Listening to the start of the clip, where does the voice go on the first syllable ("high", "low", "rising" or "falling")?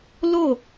falling